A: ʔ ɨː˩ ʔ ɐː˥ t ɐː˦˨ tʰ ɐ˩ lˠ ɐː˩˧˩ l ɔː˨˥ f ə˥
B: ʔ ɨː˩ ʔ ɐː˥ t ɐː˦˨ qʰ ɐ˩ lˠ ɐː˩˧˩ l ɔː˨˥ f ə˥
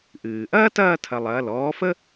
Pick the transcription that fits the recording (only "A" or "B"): A